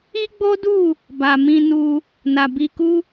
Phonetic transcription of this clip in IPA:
i˦ ɡ͡b o˦ d u˦˨ | b a˨ m ĩ˧ n u˧ | n a˨ b i˧ k u˦

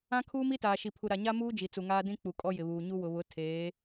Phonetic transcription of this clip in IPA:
ã˦ kʰ uː˦ m i˦ t aː˨ ʃ i˨ pʰ u˨ ɾ a˨ ɲ a˦ m uː˦ d͡ʒ i˨ t͡s u˨ ŋ aː˦ d ĩ˦ k͡p u˨ kʼ ɔ˦ j ɪ˨ β uː˨ ɲ u˦ w ʊ˨ β ʊ˨˦ tʰ eː˨˦

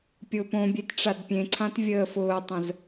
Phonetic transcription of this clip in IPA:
pʲ ʊː p õ bʲ e t ʈ͡ʂ a d pʲ ẽ ǀʰ ã t vʲ əː f ʊː tˤ ə̃ z

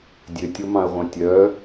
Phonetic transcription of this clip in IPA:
dʲ ø tʲ o m ɑ̃ ə̯ ʁʷ ɑ̃ tʲ œ

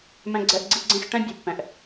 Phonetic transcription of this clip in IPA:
m ɛ̃˦ ɡ͡ǀ ɛ˦ ʔ ɡ͡ǀ i˥ ɡ͡ǀ ẽ˥ x ʈ ɛ̃˥ bʲ u˩ pː ɛ̃˩ ʔ

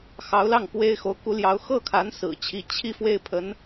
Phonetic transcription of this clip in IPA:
x ɑ˧˥ ʊ̯ l ɑ˥˩ ŋ k w e˥ ɪ̯ x o˧˥ ʊ̯ k u˧˥ l j ɑ˧˥ ʊ̯ x ɤ˥˩ kʰ a˧˥ n s ɹ̩˨˩ t͡ɕʰ i˧˥ t͡ɕʰ i˥˧ f w e˥˩ ɪ̯ pʰ ə˧˥ n

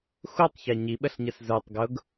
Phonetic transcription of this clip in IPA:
x u tˤ ç æ ɲ i ɓ ə ɬ ɲ ə s z ə˞ tˤ ɡ ʊ ɡ

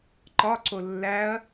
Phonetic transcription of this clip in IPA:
ǃ ɒ ǀ o lː æ ɐ̯

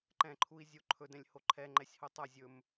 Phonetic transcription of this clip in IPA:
ǃ ɛ̃ ǃʰ u i̯ zʲ o ǃʰ ɵ d ɛ̃ lʲ h o ǃʰ ɛ ŋ͡ǃ ɛ sʲ h o tˤ a zʲ ɵ m

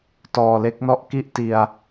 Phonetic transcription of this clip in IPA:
t ɔː˨˩ l e˦˥ k̚ n ɔ˦˥ ʔ k i˥˩ ʔ t i˨˩ a̯

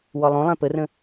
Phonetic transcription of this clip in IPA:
w ɔ lˠ õ lˠ ɛ̃ p ə r ə̃

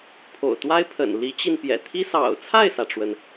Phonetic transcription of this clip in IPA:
pʰ o̰˨˩ ʊ̯ t̪ w a˥ ɪ̯ pʰ ə̰˨˩ n l i˧˥ t͡ɕ i˧ n p j ɛ̰˨˩ t̪ʰ i˥ s ɑ̰˨˩ ʊ̯ t͡sʰ a˥˩ ɪ̯ s ä˩ ʈ͡ʂ w ə˩ n

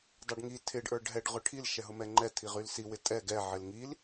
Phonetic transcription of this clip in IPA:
dˤ a ɖ ŋ i tʰ ɪ ɖ ʔ ə˞ ɖ ɦ ɛ ɖ ʁ ʊ ʈʰ i l ʃ ɛ ɦ ʊ m ɛ ŋ͡ǃ ɛ tʰ i ʁ y l s i w ɪ tʼ ɛ ɡ ɛ ʕ ɪ l ŋ i l

